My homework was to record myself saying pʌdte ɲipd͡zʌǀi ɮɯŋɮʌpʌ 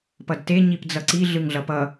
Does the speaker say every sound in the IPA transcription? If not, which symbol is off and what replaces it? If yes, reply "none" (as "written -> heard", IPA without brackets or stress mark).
none